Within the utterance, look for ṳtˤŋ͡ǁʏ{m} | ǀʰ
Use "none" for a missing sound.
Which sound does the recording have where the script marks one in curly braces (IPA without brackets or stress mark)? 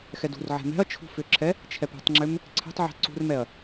m